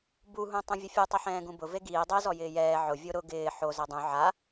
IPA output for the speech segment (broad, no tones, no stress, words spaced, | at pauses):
buɦũ tˤũvʲʊfʲutˤɪ ħɛ̃ːɡũbʊ veɡiː dˤɛzɔ jɪːjɛː ʕʊ vʲoɾʊ ɡɪː ħo zɛdˤũ ʕa